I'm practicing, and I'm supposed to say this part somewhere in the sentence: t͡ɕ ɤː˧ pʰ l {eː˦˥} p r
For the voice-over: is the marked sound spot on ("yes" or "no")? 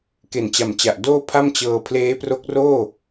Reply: yes